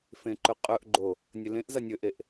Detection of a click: present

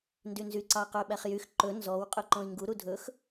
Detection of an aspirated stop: absent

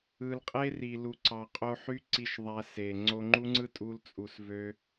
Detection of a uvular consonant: present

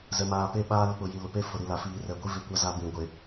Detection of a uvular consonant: absent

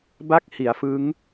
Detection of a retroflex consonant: absent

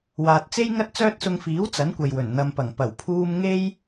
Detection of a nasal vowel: absent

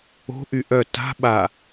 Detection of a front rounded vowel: present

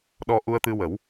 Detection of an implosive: present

